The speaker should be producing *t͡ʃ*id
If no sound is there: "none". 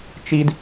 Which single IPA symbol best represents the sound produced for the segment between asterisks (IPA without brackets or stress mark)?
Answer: t͡ʃ